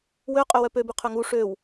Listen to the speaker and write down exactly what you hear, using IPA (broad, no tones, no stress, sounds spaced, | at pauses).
w ø qʼ ø w œ p ø b y qʰ ʏ ŋ u ʂ ø w